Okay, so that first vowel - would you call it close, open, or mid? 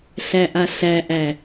open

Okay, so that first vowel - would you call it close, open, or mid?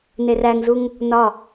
mid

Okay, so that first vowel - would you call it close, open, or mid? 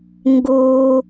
close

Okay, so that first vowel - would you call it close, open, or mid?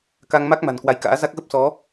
open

